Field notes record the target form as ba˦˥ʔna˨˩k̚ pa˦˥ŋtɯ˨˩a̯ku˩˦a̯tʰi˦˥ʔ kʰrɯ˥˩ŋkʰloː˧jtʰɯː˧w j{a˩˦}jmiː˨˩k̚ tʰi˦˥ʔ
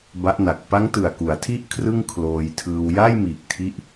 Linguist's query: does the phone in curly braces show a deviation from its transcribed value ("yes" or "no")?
yes